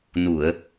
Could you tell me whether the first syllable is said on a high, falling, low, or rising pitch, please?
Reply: low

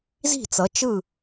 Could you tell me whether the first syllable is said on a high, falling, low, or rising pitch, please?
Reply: falling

